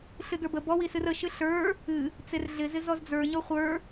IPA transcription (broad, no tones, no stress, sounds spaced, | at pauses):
ɬ ɨ d ə˞ b ə b ɔ w i s ɨ r ə ʃ ɨ ɬ ə˞ | ɨ | t͡s e r ɮ ɪ z ɪ z ɔ z d͡z ə˞ ɲ ɔ χʷ ə˞